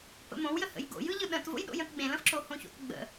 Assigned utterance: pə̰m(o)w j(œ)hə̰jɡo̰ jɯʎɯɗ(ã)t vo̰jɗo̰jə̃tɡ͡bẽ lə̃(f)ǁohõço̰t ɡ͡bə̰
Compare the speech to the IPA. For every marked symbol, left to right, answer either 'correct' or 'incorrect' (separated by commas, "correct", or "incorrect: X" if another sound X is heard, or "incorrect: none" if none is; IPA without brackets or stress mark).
incorrect: õ, incorrect: ə, incorrect: ə̃, correct